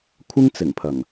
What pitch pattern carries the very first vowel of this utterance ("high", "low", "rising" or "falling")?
high